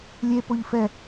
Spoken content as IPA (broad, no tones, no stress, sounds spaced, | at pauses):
lʲ e p o ʎ f ɛ